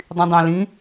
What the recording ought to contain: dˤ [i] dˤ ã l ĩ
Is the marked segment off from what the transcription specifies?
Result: yes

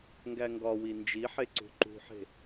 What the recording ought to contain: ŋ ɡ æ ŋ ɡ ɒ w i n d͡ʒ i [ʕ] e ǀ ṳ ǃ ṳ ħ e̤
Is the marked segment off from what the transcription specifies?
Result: yes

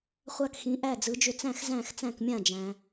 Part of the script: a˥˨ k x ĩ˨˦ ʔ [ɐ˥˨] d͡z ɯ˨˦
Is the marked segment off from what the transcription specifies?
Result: yes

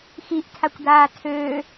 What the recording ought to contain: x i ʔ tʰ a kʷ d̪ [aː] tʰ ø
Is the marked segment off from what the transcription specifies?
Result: no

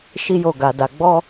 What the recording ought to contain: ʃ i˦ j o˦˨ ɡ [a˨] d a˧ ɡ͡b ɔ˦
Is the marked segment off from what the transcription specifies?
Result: yes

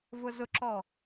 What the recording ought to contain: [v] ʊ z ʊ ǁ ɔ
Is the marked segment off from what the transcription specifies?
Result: no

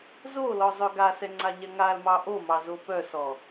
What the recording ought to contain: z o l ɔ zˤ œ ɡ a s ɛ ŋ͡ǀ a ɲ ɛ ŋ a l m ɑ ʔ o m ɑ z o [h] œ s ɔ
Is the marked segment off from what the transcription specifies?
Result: yes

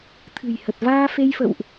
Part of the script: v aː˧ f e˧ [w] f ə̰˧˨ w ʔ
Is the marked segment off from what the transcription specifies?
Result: yes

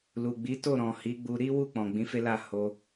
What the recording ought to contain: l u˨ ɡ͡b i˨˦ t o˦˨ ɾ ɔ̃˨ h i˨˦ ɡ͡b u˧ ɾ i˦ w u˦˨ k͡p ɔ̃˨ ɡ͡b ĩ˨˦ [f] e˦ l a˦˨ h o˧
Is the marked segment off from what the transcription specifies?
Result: no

